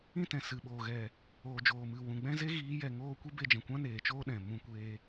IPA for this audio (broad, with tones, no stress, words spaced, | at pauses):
ĩ˦tɛ̃˨ sɨ˨ɓoː˨ ɣɛ˨ | oː˨d͡ʒoː˨mɨ˨ wũ˨ɡ͡bɛ̃˦ ze˦ɣiː˨˦jɛ˨ŋoː˦˨ kʷi˦be˧d͡ʒɛ̃˨kʷã˦ neː˨t͡ʃoː˦ ɗɛ̃˨ mũ˦kʷeː˦